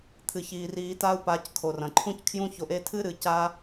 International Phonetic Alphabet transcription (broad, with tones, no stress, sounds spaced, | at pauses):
t̪ʰ ɨ˨ ç iː˨ r iː˧ t a˦ u̯ p a˨˦ c kʰ o˨ r ɐ̃˨ ǃʰ ũ˦ c kʰ j ũ˦ ç o˧ ʔ e˧ tʰ ɨ˦ ɾ ɨ˨ c a˦